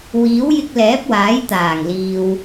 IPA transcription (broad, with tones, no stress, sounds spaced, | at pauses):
w iː˨˥ w j ɪ˧ k̚ l ɛː˨˥ p̚ w aː˨˥ j t̪ aː˨˩ ŋ l iː˨ w